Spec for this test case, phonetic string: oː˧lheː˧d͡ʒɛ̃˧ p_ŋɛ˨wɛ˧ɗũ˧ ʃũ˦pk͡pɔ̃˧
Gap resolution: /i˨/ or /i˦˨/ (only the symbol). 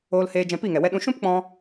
i˦˨